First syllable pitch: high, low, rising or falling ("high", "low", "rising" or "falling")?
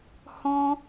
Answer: high